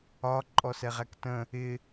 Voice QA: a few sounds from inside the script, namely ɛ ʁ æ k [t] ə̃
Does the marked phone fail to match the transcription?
no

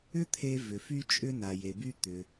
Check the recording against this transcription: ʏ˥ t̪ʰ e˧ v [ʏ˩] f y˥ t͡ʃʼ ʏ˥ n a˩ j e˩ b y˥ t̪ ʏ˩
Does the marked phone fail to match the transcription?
no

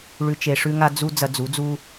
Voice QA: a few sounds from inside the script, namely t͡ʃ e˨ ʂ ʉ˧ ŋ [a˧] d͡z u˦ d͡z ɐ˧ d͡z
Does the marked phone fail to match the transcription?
no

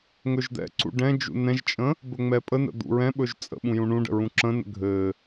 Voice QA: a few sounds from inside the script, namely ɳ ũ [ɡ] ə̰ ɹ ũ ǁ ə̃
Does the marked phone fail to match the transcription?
yes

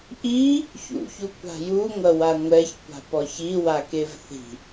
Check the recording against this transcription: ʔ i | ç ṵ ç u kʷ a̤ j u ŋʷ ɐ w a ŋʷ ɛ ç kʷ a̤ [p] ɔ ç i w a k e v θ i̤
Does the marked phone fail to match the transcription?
no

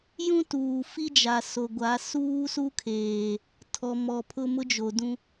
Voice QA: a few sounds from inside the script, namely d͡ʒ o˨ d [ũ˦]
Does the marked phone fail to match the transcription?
no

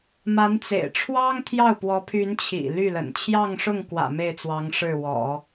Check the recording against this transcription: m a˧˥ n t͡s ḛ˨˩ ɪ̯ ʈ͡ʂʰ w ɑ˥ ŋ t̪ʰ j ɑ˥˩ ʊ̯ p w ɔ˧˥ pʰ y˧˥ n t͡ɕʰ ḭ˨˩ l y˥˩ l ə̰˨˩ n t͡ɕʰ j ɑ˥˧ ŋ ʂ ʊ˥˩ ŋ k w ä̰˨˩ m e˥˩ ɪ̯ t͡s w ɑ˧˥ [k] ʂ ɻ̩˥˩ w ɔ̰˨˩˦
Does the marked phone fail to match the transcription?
yes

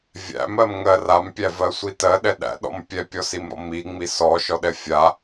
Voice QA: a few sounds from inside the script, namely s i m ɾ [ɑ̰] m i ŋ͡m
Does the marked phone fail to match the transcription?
yes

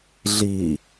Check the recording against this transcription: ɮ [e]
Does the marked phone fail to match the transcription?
yes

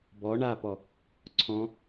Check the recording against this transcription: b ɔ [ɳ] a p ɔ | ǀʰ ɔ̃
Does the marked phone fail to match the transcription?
no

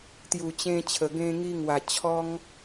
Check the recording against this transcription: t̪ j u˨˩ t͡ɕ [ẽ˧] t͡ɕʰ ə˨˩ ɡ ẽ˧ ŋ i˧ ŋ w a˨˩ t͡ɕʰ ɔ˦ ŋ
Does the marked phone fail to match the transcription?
no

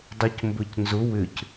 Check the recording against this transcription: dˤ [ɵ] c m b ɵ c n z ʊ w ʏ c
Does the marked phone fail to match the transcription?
yes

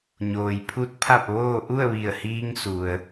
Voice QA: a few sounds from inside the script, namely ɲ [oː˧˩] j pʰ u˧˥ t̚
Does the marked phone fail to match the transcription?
yes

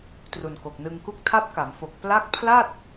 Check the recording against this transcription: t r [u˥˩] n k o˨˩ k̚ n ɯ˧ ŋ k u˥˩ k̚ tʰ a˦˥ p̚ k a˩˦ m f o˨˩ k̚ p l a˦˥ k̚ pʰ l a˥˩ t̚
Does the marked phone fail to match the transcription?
yes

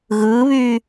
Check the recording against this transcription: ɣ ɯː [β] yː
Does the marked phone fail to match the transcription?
no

